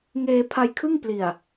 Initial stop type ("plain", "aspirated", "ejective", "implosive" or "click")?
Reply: aspirated